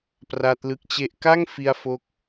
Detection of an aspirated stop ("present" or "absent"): absent